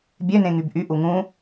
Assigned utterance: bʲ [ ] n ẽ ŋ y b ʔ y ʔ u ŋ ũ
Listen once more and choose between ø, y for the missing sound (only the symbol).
ø